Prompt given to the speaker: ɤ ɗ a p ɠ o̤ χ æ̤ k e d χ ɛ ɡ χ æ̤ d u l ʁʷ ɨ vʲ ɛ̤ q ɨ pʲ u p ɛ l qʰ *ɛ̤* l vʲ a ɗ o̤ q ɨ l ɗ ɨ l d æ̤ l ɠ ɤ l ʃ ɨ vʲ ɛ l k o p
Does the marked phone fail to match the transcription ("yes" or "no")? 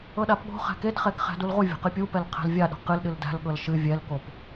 no